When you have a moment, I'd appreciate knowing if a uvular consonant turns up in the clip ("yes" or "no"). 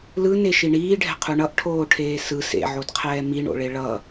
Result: yes